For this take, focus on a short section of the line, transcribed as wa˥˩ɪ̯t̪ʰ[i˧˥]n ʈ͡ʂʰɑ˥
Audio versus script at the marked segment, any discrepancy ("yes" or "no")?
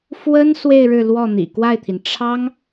yes